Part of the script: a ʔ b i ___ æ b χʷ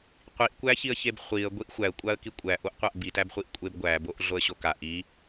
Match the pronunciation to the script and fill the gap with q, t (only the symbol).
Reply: t